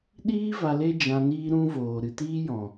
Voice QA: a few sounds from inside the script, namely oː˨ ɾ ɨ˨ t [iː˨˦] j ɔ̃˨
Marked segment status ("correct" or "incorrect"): incorrect